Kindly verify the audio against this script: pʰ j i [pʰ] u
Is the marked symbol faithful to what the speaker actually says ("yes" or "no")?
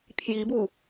no